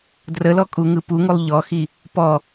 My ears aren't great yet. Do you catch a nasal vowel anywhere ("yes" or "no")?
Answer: no